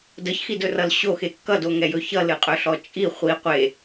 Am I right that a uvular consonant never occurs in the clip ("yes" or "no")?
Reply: no